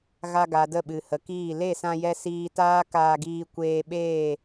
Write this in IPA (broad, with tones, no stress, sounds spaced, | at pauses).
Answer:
ɣ a˧ ɡ a˨ d ə˦˨ ɓ ɨ˨ h ə˨ k iː˦˨ l e˦˨ s ã˧ j ɛ˧ s iː˧ t aː˦ k aː˧ ɡ iː˧ kʷ eː˧ ɓ eː˦˨